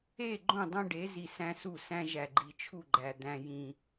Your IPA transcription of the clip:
e˦˨ ɡ͡ǃ õ˦˨ dˤ õ˦ ɖ e˨˦ z i˨ s æ̃˦ s u˦˨ s æ̃˦ ʒ æ˨ ɡ͡ǃ i˨ t͡ʃʰ u˦˨ ɡ͡ǃ æ˨ d̪ æ̃˦ j ĩ˦

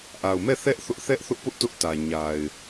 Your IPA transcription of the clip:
ʔ a˨ ʊ̯ m ɛ˦˨ θ ɛ˦ ʔ θ ʊ˦ ʔ θ ɛ˦ ʔ θ ʊ˦ ʔ p ʊ˦ ʔ t ʊ˦ ʔ t ä˨ ɲ a˨ ɪ̯

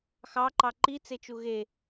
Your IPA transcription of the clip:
x ɑ ǃ ɑ ǃ i t͡s e t͡ʃ u ɣ e

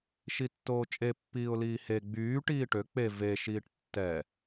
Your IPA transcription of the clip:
ʃ i tː oː t͡ʃʼ e pː iː ʊ̯ l iː h e ɡ͡b yː ʈ iː ʈ ø k͡p e v e ʃ iː ʈ tː ɛ

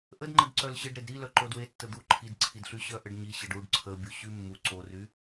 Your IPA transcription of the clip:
ʔ ə d ŋ͡ǃ ə d ǀ œ l ɕ ə ɖ ɾ e d ɾ i l œ ǃ o d w e tː ə d̪ u ǃʰ i d ǀʰ i d ɬ y ɕ œ ʔ ə ɖ ɲ i ɕ ə ɖ u ɖ ǀʰ ə bʲ u ɕ y mː u ǀ o r y

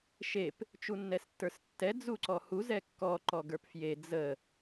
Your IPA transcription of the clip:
ʃ e p | t͡ʃ u nː ɛ s tː ə˞ s tː ɛ d͡z u ǀ ɔ h u z ɛ kː ɔ ǃ ɔ ɡ ə˞ p f j e d͡z ə

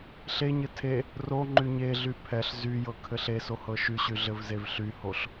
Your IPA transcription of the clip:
ɬ e ɲ ɘ tʰ e | r o ŋ͡ǃ y ɲ e ɮ y pʰ ɛ ɬ z y j ɤ kʰ ɘ ɬ e s o h ɤ ʃ y ɕ y ɮ ɘ v z e v ɬ y h o ɬ

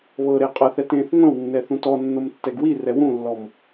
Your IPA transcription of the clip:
β ɤ ɾ e qʼ ɤ θ ɛ t ẽ θ ŋʷ ɛ̃ w nː ɛ θ ũ t ɔ nː o m tː ɛ ɡ w i r ɛ w ũ lː ɔ m

